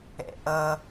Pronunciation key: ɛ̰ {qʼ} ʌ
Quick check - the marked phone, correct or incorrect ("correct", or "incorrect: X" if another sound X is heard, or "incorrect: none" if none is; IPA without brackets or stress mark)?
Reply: incorrect: ʔ